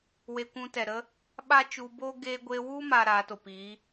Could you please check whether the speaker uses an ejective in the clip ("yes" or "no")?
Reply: no